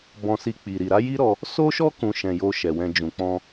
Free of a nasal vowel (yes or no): no